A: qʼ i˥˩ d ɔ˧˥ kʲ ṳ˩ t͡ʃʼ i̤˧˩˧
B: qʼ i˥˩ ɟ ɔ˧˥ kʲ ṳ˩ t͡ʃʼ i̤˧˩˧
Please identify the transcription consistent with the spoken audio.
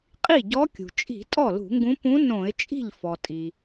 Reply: B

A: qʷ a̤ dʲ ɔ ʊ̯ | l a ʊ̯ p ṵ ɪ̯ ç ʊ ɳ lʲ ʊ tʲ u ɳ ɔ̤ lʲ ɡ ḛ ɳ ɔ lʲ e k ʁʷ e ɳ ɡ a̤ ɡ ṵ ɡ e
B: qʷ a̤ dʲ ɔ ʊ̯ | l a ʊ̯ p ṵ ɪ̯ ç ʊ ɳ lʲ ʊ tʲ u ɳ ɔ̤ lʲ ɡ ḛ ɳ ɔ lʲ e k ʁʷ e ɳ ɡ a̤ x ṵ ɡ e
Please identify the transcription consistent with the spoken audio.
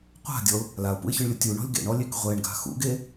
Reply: B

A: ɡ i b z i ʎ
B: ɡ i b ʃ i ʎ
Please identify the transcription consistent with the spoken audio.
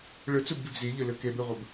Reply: A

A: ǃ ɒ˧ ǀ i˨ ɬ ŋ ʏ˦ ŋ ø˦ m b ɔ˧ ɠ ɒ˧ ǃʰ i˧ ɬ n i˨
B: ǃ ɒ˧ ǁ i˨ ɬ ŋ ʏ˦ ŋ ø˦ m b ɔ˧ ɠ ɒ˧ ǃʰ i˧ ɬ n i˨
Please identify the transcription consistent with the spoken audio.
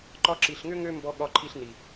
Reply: B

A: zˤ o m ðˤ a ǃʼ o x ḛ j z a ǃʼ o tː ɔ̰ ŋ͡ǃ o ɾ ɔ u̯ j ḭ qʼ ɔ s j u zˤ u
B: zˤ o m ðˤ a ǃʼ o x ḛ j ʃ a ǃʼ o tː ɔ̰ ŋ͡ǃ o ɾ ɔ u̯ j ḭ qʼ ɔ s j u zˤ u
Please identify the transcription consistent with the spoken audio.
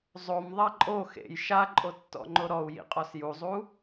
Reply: B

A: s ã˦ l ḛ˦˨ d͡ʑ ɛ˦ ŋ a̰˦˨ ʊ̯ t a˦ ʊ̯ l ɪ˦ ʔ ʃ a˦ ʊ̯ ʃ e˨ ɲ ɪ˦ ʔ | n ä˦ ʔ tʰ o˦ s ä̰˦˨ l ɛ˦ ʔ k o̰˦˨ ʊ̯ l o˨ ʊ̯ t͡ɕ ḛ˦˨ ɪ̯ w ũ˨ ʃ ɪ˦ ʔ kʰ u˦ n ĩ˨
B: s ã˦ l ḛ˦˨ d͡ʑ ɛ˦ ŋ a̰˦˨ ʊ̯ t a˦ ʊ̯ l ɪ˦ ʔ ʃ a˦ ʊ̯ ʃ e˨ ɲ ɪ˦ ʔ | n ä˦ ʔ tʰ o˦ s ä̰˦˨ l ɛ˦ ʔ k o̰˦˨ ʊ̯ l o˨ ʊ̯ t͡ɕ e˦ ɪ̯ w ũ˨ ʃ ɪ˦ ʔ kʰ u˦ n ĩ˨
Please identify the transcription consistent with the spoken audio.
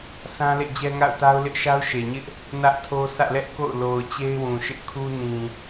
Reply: B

